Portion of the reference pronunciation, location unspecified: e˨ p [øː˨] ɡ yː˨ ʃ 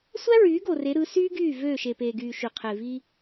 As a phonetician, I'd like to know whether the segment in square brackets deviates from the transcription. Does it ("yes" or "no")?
yes